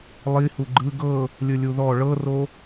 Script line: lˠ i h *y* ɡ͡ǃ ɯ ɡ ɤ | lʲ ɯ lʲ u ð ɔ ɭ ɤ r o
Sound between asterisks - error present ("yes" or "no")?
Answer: yes